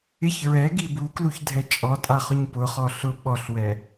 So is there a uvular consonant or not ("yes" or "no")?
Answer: yes